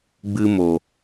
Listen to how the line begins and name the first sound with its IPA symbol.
ɡ͡b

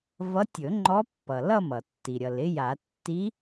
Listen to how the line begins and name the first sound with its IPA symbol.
v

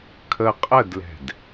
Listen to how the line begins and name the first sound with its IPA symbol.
kʰ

